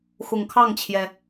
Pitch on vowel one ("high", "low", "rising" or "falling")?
low